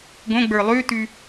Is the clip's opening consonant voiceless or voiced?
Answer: voiced